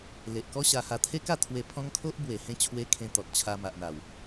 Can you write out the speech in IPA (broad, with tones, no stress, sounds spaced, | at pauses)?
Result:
l e˨ ʔ k ɔ˦ ɕ a˧ h a˧ t̪ʰ e˦ k a˥˧ t̪ʰ w e˧ pʰ ɔ̃˦ ŋ kʰ o˦ ʔ b w e˨˩ h ẽ˧ t͡ɕʰ w e˧ kʰ ẽ˧ t̪ ɔ˨ t̚ t͡ɕʰ a˧ m a˨ ʔ n̪ a˨˩ w